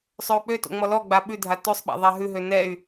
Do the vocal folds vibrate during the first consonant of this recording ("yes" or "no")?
no